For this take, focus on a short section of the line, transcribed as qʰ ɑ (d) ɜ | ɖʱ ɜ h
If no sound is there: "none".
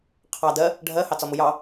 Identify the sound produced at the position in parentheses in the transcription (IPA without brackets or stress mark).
d